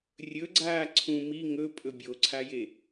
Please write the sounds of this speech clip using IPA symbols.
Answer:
rʲ ɵ ɡ͡ǀ aː ǀʰ ũ m i ŋ ɵ pʼ ɵ bʲ o ǀʰ a j e

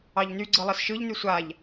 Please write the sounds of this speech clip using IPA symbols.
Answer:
ɑ ʎ n y ɡ͡ǀ ɯ lˠ ɜ s ʃ ɯ ʎ n y sʷ a ʎ

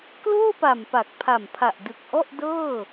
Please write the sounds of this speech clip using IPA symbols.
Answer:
k l oː˥˩ p a˨˩ m p a˨˩ k̚ pʰ a˨˩ m pʰ a˨˩ ʔ d ɯ˨˩ k̚ ʔ ɔ˥˩ ʔ d ɤː˥˩

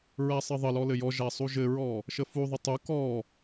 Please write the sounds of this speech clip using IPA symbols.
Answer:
ɹ æ sˤ ɘ ðˤ ə l ɔ l ɘ j ɔ ʒ æ sˤ u ʒ ɘ ɹ ɔ | ʃ ə f u ðˤ ə tˤ u k ɔ

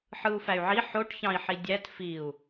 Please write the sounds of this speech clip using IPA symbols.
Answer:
ħ ɯ u̯ f æ y̯ ʕ i ħ o ʈ ç ɑ̃ i̯ ħ i dʲ æ t f i u̯

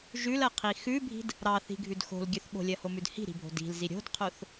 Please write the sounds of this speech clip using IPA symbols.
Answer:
ʒ ʉ l ɜ qʰ i x ʉ bʱ i̤ d | ɾ ɑ θ i̤ ɡʱ ʉ d x o̤ l ɡʲ ʉ θ ɓ o̤ lʲ ɜ h o m ʉ d h i̤ ɾ i̤ bʱ o̤ d i̤ l z i ɾʲ o̤ d qʰ o θ

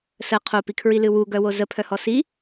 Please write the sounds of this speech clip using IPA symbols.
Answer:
s ə qʰ o p i kʰ ɹ i l ɨ w u ɡ œ w o z ə pʰ œ h ɔ s i

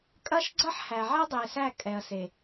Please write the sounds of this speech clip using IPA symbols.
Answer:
kʼ ɐ˦ ʃ ɡ͡ǀ ɐ˦ ħ h æ˨ ʕ ɛ˦ dˤ e˨ s æ˦˨ kʼ ɛ˨ ɐ̯ s e˨

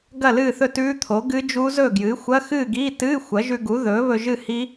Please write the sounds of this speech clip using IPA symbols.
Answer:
ɡ ɐ˥˨ l ɨː˥˨ θ ɵ˥˨ t ʉː˦˥ t̪ʰ o˩˥ ɡ ɨ˦˥ d͡ʒ u˦˥ z ɵ˥˨ ɡ j ɨː˩˥ xʷ ɐ˧˥˧ x ɨː˥˨ ɡ iː˧˥˧ t ɨː˧˥˧ xʷ ɐ˩˥ ʒ ʉ˧ ɡ u˩˥ ð ɵː˩˥ β ɵ˧ ʒ ɨ˥˨ h i˦˥

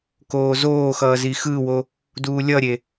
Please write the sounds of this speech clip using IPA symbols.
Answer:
k oː z oː x ʌː z i x ɯ w o | d uː lʲ ʌ ɾʲ e

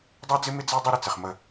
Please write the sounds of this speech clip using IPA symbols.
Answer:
dˤ ɛ˦ d͡z ɪ˦ m ɪ˦ d͡z ɛ˦ dˤ i˦ ɾ ə˨ t͡s ɪ˨ χ m ə˦˨

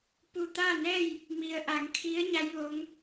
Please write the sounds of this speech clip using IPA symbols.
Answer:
p u˧˩ t̪ a˥˨ n ɛː˥˨ j | m i˩ ə̯ ʔ a˩˧ ŋ kʰ i˧˥ ə̯ ɲ a˧˥ j ʋ o˧˥ ŋ

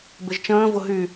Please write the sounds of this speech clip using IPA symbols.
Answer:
b ɪ ʒ t͡ʃ ə̃ː v ʊ ɦ y

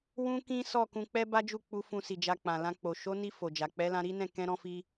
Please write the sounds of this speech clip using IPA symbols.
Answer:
w ũ˦ k ĩ˦ s ɔ˦˨ k ũ˧ k͡p ɛ˦ b a˦ d͡ʒ u˦˨ k͡p u˧ f ũ˧ s i˨ d͡ʒ a˧ k͡p ã˨ l ã˧ k͡p o˨ ʃ o˨˦ n i˧ f o˨ d͡ʒ a˨ k͡p ɛ˨˦ l ã˧ ɾ i˦ n ɛ̃˦˨ k ɛ̃˧ ɾ ɔ̃˧ f i˧

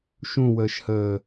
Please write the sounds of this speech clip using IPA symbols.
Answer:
ʃ ũ w əː ʃ h əː

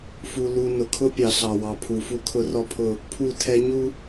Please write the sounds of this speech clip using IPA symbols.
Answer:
f u˦ l u˦ n ʊ˨ kʰ ʊ˦ pʲ ɑ˨ ɬ ɑ˨ w ɑ˨ pʰ u˨ f u˦ kʰ ʊ˦ r ɔ˦ pʰ ʊ˦˨ | pʰ u˦˨ tʰ ɛ˦ ɲ u˦

